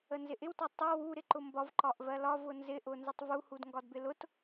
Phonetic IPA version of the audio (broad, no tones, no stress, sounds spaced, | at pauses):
ə n z ɪ ʔ ɪ w t ɒ tˤ u w u ɾ ɪ ǃ ʊ m b ɒ v ǃ ɒ ʔ v ɜ l ɒ v ʊ n z ɪ ʔ ʊ n z ɪ tˤ v u h u d ŋ ɡ ɒ d b ɪ l ʊ t